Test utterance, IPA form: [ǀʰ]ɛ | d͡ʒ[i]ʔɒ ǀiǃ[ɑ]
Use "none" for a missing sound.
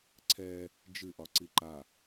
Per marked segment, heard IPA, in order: ǀʰ, ɨ, a

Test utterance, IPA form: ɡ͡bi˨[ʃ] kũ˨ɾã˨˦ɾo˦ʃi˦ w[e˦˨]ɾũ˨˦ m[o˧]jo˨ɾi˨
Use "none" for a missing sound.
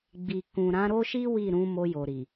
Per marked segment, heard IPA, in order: none, i˦˨, o˧

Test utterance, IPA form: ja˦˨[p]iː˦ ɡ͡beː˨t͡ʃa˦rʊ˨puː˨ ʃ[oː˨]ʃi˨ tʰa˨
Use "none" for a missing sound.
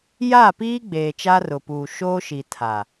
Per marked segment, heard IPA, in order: p, oː˦

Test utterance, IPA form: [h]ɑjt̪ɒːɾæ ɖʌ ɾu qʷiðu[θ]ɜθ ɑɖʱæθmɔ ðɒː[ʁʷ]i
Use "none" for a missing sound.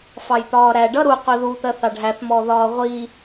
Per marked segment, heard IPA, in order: f, t̪, ʁʷ

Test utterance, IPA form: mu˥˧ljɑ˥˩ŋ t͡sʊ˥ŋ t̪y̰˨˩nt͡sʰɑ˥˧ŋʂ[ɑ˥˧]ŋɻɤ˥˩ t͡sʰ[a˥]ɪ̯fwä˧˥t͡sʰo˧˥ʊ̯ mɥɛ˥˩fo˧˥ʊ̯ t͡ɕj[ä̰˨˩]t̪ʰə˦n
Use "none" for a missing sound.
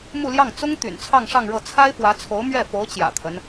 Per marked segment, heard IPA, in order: ɑ˥˧, a˥, ä̰˨˩

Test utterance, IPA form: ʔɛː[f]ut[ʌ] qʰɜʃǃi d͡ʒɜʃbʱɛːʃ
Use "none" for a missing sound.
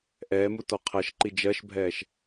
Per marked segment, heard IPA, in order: m, ɔ

